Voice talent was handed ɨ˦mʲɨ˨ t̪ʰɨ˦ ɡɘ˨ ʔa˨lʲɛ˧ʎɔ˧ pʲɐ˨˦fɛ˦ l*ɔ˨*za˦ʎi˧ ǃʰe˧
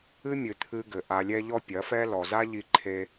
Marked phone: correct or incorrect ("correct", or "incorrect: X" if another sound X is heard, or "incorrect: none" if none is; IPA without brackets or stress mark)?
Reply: correct